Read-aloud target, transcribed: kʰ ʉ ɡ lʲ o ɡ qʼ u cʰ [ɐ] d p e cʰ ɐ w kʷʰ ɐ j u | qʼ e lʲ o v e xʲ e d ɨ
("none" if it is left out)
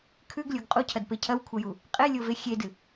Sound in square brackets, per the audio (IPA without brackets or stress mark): ɐ